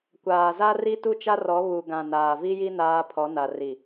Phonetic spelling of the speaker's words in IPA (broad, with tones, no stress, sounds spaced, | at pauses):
kʷ aː˨ z a˦ r i˦ t u˦ t͡ʃ a˦ r ɔ˨˦ β u˨ ɡ ã˨ n aː˨ v i˦ j i˦ n aː˦ pʰ ɔ˨˦ n a˨ r i˨